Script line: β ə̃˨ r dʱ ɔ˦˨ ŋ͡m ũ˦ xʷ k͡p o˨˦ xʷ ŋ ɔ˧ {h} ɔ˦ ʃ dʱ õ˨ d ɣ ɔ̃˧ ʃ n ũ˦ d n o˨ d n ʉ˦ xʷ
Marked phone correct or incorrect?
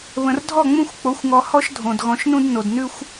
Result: correct